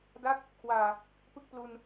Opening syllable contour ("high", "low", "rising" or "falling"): falling